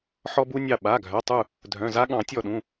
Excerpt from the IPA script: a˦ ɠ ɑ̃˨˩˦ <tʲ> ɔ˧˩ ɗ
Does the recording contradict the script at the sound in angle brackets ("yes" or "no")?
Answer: no